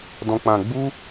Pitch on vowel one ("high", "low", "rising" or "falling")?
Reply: low